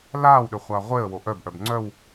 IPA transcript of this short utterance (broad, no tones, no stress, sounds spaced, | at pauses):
l aː w ɗ ø χʷ a ʁʷ e ə̯ w o ʔ œ b ʔ œ b ŋ͡ǀ œ w